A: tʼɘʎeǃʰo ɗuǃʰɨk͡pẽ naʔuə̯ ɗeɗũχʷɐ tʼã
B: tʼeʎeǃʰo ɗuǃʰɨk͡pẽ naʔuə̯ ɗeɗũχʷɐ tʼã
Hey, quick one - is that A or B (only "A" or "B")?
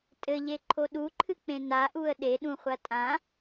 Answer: A